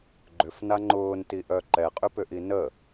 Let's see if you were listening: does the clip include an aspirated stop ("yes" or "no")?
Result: no